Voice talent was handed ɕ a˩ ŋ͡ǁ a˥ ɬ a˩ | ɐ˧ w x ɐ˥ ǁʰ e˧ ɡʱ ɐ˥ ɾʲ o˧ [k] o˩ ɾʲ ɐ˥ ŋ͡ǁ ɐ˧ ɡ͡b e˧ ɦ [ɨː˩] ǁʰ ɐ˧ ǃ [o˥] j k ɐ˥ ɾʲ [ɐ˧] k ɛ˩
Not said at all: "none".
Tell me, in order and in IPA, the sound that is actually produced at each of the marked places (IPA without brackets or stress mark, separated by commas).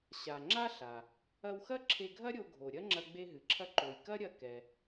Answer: ɡʱ, ɨ˩, o˩, ɐ˧